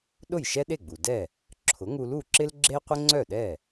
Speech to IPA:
ɗ ʊ˥˩ j ʃ ɛ˥ ɗ e˥˩ ɡ͡b u˩ d ɛ˥˩ | ǁʰ ʊ˩˥ ŋ u˧ l u˥˩ ǁ ɪ˥ l ɡ͡ǁ e˥ qʷ ɪ˥ ŋ͡ǀ œ˥˩ ɗ ɛ˥˩

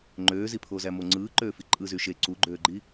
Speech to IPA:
ŋ͡ǃ øː z i pʰ o z æ m o ŋ͡ǀ ɯː ǃ øː f i ǃʼ ɯ z y ʃ e ǀ u ɡ͡ǃ øː ɡ͡ǃ i

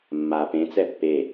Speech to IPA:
mː a p ẽ t͡s ɛ pː e

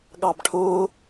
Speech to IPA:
ɠ ɑ b ʈʰ ʊː

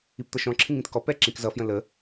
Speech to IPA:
i p t̪ ʌ ʃ ɔ̃ ǁʰ ĩ ŋ ĩ t k ɔ p ɛ ǁ ĩ k z ʌ f j ə̃ l ə

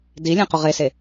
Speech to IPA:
d i lʲ ɛ̃ q ʊ ʁ e s e

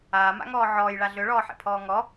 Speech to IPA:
aː m a̰ ŋ ɔː ʕ ɔː j ɭ a ɮ ø ɭ ɔː ħ ḛ pʰ ɔː ŋ ɔ

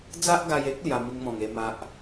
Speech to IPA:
d͡z a˦ ʔ ɡ a˧ j e˦ k̚ l j a˧ m i˧ ŋ m ɔ̃˨˩ ŋ e˧ m a˦ ʔ

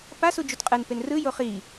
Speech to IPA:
p a s u d͡ʒ u t qʼ ɯ n p e n r ɯ j o χ i

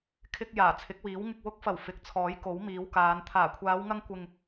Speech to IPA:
kʰ ɪ˧ k̚ j aː˨˩ t͡sʰ ɪ˨˥ k̚ w iː˨˥ w ŋ ɪ˧ k̚ w ʊ˨˥ k̚ f ɐ˨˩ w f ɪ˨˥ k̚ t͡sʰ ɔː˨˥ j k o˨˥ w m iː˨˧ w k aː˨˧ n t̪ʰ aː˨˩ kʷʰ aː˨˧ w ŋ ɐ˧ ŋ kʷ ɪ˨ ŋ

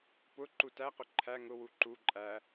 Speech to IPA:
p ʊ ǃ u t æ q ʊ ǃʰ æ ŋ ʊ w u ǃ u ǃʼ æ

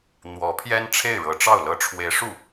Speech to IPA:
n̪ w ɔ˧˥ pʰ j ɛ˥ n ʈ͡ʂʰ e˥˩ ɪ̯ ɻ ɤ˧˥ ʈ͡ʂ ɑ˥˩ ʊ̯ l ɤ˥ ʈ͡ʂʰ w e˧˥ ɪ̯ ʂ u˥˩

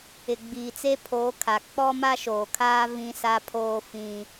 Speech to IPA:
ɪ˨ ɡ͡b iː˨ t͡s e˦ pʰ oː˨˦ kʰ a˨ k͡p ɔ˦ m a˦ ʃ oː˨ kʰ aː˦ v ĩ˦ s a˦ pʰ oː˦ f ĩ˦

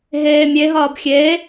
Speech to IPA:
ɦ eː mʲ e ɦ ʌː b xʲ e

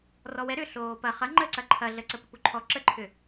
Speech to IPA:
r ɔ w ɛ ɾ ʏ ɬ oː p ɐ χ ɐ ŋ͡ǃ ə ǀ ɐ ǃʰ ɐ ɮ ə ǀ ə p ə p u ǃʰ ɔ ǁ ə ǃʰ ʏ

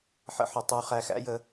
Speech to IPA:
ħ ə̰˦ ħ ʊ˩ tˤ u˨ χ æ˨ x æ̰˦ j ə˨

